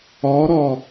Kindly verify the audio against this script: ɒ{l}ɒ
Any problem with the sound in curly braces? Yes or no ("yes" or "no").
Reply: yes